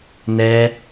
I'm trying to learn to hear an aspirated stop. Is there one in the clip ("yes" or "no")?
no